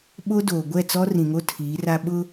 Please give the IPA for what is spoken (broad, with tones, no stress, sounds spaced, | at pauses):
ɓ o˦ d oː˨ ɡʷ ɛ˦˨ t͡s ɔ˦ r ĩ˨ ŋ o˦ tʰ iː˨˦ r a˦ ɓ ʊ˦